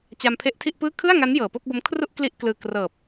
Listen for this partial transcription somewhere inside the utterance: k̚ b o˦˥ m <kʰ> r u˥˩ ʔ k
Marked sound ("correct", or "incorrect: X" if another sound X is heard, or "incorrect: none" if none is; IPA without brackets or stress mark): correct